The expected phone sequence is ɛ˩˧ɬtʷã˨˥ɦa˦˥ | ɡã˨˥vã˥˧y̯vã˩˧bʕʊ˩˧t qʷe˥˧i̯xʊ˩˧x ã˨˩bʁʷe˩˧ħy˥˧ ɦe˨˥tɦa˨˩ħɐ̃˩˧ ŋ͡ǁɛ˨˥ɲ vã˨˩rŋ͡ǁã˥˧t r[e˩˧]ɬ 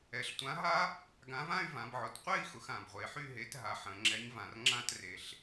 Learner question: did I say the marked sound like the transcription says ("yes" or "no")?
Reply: no